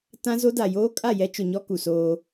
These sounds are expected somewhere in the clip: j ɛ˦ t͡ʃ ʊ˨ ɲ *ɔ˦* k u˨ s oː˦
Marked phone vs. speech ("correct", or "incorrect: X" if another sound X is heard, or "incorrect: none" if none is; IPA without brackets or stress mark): correct